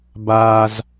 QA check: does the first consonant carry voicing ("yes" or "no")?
yes